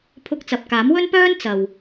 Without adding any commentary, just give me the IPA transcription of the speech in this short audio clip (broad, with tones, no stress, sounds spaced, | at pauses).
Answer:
pʰ ʊ˧ k̚ t͡s ɐ˨ p̚ k aː˨˥ m w ɵ˥ n p œː˥ n t͡s ɐ˨ w